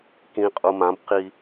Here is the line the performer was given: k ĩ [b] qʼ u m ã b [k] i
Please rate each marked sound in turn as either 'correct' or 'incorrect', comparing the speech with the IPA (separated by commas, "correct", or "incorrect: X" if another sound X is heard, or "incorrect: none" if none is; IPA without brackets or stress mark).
incorrect: none, incorrect: q